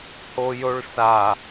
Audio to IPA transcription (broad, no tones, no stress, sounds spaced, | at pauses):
h o j o ɭ s a